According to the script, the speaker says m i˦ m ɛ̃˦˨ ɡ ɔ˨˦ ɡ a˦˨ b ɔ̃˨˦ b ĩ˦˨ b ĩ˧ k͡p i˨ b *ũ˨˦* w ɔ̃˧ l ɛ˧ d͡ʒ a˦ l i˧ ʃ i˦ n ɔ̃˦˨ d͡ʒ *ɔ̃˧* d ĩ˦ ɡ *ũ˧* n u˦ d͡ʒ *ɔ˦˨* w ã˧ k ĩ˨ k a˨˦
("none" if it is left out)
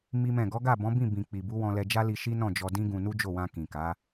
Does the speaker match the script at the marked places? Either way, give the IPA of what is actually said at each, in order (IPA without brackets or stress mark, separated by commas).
u˨˦, ɔ˧, ũ˧, o˦˨